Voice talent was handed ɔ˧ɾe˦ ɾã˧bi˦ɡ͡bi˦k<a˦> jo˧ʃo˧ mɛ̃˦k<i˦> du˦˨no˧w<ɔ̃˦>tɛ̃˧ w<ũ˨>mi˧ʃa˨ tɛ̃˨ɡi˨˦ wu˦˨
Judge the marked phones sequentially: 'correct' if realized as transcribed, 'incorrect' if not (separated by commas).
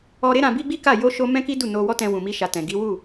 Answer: incorrect, correct, incorrect, correct